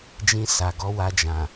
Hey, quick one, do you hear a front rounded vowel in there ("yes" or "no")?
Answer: no